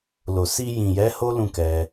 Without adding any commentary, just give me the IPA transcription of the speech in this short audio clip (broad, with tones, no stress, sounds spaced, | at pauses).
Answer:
l o˨ s i˧ j ĩ˨ j ɛ˨˦ h o˦ l ũ˦˨ k ɛ˧